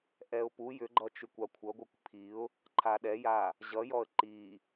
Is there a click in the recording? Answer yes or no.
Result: yes